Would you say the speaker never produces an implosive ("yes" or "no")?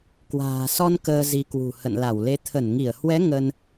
yes